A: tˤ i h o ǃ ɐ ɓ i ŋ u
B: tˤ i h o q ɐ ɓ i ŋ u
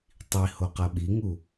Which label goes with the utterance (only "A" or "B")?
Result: B